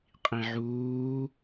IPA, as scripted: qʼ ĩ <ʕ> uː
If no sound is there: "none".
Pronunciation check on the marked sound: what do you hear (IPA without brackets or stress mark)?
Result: ʕ